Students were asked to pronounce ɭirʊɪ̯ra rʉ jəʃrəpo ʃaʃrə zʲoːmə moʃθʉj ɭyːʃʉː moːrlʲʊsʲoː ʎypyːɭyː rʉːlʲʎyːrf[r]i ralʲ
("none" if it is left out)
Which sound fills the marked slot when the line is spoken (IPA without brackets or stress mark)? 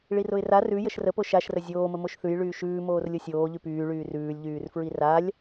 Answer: ɹ